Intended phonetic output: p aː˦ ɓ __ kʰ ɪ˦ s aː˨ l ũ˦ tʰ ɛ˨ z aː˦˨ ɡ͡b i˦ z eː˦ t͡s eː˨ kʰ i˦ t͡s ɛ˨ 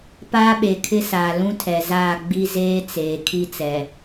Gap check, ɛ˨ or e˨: e˨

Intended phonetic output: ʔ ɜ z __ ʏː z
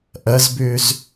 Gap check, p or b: b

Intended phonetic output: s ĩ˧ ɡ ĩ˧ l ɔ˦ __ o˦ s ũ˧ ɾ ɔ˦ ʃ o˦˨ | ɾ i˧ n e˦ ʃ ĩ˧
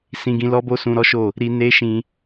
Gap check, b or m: b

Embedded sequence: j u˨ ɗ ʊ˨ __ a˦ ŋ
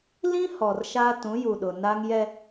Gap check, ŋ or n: n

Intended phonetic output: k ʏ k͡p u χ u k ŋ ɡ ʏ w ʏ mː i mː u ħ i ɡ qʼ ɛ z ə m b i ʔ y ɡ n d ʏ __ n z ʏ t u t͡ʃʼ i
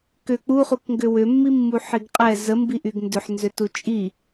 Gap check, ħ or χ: ħ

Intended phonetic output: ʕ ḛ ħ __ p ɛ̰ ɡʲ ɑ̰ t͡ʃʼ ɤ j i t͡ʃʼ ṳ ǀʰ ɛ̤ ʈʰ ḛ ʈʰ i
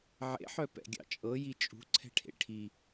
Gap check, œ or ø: œ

